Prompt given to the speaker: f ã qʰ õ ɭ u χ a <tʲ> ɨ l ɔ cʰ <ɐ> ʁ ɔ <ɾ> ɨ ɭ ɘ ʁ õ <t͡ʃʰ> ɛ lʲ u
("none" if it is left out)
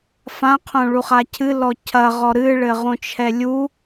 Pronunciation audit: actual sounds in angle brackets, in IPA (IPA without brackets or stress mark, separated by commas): cʰ, ɐ, ɾ, t͡ʃʰ